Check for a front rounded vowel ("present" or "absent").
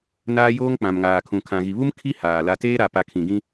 absent